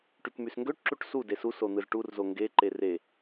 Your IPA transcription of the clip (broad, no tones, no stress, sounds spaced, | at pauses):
ʈ y k m y s ŋ ɡ ø ʈ ǁ u ʈ s u d e s u s o n̪ ɯ z ʈ u r z o ŋ ɡ e ǃ e r e